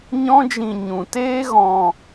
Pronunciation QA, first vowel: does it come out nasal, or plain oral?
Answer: nasal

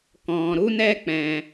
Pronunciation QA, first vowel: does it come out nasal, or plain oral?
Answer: nasal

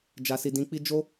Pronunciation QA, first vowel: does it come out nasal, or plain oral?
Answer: oral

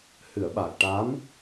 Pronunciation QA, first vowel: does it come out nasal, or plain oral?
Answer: oral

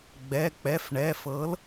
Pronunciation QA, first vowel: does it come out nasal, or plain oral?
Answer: oral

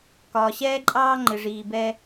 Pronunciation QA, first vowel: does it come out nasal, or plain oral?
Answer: oral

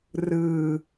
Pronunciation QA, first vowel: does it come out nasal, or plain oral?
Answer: oral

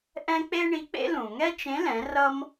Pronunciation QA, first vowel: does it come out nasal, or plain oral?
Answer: nasal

